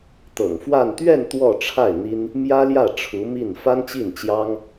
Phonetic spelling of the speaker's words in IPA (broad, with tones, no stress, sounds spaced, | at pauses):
t̪ ɤ̰˨˩ ŋ f w a˥˧ n t̪ ɥ ɛ˥˧ n t̪ w ɔ˥˧ ʈ͡ʂʰ a˥˩ ɪ̯ n̪ i˥ n | m j ä˥ l j ä˥˩ ʈ͡ʂʰ u˧˥ m i˥˩ n f a˥ n t͡ɕ i˥˩ n t͡ɕ j ɑ˥ ŋ